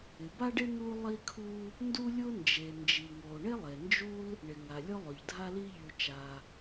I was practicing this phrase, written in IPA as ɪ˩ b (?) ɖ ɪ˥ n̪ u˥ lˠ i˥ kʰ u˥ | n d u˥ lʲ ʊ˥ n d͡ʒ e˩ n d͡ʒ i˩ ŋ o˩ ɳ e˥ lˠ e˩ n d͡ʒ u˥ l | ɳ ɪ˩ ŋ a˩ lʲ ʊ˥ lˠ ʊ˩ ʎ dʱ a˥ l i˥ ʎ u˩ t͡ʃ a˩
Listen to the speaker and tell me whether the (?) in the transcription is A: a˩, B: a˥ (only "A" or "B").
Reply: B